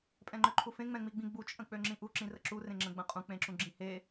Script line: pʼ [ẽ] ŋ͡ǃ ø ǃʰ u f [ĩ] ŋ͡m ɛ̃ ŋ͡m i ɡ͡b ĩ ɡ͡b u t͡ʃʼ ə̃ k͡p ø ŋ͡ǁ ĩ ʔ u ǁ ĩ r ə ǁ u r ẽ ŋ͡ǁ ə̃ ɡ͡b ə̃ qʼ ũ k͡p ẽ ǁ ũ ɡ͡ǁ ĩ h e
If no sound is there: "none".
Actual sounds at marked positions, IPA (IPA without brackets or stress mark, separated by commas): ɛ̃, ẽ